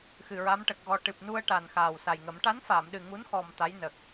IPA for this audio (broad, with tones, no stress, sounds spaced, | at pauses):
x ɨ˨˩ ɹ a˧˥ m ʈ ə˨˩ k̚ ɣ ɔ˧ ʈ ɨ˨˩ p̚ n u˧ ə̯ ʈ a˨˩ n x aː˨˩ w s a˨˩ j ŋ ə˨˩˦ m ʈ a˧˥ n f aː˨˩˨ m ɗ ɨ˨˩ ŋ u˧˥ n x ɔ˨˩ m t̪ a˧˥ j n ə˨˩ k̚